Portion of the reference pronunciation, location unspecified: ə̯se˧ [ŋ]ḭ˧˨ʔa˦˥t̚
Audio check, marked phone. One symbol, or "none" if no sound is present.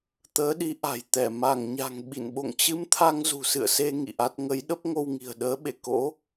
ŋ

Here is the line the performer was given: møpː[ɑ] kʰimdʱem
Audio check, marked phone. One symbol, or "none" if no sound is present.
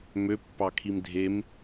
ɑ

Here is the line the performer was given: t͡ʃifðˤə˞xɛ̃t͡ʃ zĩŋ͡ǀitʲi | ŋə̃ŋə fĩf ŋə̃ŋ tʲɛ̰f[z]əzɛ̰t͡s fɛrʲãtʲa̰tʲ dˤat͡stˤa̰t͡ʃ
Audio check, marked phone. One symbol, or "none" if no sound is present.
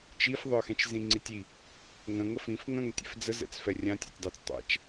d͡z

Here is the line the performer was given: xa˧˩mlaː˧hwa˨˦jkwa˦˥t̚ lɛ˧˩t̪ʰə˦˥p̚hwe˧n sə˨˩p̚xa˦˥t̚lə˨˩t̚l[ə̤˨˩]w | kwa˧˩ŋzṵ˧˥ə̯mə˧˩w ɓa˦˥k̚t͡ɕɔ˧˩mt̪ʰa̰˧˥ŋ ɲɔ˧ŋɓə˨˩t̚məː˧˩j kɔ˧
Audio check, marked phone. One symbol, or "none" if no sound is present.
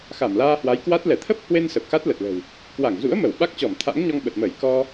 ə̤˨˩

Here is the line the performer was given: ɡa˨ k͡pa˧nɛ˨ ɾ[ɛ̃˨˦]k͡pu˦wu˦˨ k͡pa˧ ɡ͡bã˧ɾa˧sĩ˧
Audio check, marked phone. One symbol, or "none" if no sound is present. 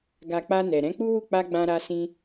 ɛ̃˨˦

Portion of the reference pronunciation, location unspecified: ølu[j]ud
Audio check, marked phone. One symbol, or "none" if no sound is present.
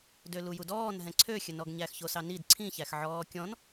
j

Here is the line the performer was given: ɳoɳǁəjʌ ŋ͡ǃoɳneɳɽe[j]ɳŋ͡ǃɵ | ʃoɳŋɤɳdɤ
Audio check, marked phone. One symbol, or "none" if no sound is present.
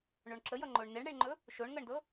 none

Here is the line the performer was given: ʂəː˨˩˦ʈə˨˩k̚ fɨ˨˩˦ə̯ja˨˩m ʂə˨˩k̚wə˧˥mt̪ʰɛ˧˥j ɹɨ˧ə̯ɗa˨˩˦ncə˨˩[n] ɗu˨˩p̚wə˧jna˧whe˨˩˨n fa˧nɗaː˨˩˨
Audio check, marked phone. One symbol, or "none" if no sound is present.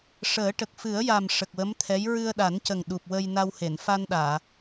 ŋ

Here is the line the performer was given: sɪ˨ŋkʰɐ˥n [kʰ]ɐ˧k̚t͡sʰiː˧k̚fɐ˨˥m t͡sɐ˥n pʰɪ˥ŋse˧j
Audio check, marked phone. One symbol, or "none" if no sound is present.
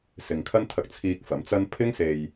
t̪ʰ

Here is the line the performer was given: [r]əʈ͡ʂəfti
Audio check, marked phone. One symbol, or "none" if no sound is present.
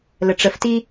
l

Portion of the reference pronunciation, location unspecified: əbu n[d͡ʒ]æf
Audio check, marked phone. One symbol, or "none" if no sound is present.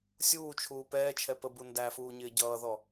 d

